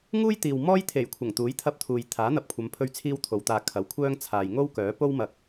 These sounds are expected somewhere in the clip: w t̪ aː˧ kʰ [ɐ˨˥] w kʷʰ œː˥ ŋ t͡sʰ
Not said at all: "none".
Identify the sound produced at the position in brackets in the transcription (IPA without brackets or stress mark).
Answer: ɐ˨˥